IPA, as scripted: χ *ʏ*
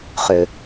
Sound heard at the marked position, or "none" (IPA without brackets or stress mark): ʏ